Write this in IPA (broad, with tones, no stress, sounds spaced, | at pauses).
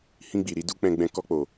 h ĩ˧ ɡ͡b i˨ ɾ i˧ d u˦ k͡p ɛ̃˧ ɡ͡b ɛ̃˧ k ɔ˧ k͡p o˨